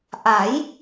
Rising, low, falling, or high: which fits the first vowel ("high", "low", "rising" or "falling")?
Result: rising